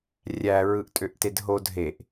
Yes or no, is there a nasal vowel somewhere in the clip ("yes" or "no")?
no